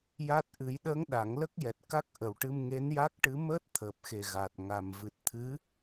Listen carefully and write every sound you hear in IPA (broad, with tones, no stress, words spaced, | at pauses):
ja˦˥t̚ ʔɨ˨˩˦jɗəː˧˥ŋ ɗa˨˩˦ŋlə˦˥k̚jɛ˨˩t̚ ka˦˥k̚ʔə˨˩wʈɨ˧m ŋe˧˥nja˦˥k̚ʈɨ˧˥ məː˦˥t̚t̪ʰəː˨˩p̚xe˨˩ ɣa˨˩t̚ŋa˨˩m vɨ˨˩t̚t̪ʰɨ˧˥